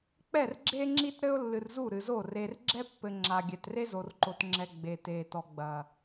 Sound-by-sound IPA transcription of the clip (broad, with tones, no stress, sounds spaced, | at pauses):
k͡p ɛ˦˨ r ɡ͡ǁ e˦ ŋ͡ǁ i˦ t ɾ ɘ˦ ʊ̯ lː ɨ˨ r z u˦˨ ɾ ɨ˨ z o˦˨ r e˨ r ɡ͡ǁ ɛ˦ pː ɘ˨ ŋ͡ǁ a˨ ɡʲ ɛ˨ t r e˦ z o˨ r ǃ o˨ t ŋ͡ǁ ɛ˨ ɡ͡b e˨ t e˨ t ɔ˨ ɡ͡b ɐ˨